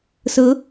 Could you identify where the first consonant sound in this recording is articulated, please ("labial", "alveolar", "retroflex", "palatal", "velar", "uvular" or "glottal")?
alveolar